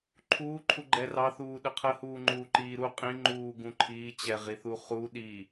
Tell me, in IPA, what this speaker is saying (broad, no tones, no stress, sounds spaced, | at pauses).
ǃʰ uː ǃʰ u ɡ͡ǃ ɛ r ɑ θ uː ɗ ə qʰ ə h uː ŋ͡ǃ uː ǃ iː ɾ u qʼ ĩ ŋ͡ǃ uː ɡ ũ ǃʰ iː t͡ɕ ɛ ʁ i θ u χ u ɗ i